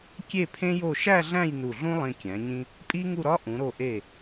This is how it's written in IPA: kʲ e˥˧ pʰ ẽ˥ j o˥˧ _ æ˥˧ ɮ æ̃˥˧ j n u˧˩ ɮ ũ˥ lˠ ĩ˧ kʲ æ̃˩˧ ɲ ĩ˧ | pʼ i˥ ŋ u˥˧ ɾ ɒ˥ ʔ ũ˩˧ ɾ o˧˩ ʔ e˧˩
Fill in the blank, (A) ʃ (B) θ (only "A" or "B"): A